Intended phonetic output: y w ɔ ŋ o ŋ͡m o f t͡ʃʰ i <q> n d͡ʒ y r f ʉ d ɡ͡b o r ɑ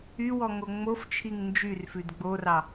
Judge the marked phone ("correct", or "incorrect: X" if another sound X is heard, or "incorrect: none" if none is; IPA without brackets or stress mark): incorrect: ŋ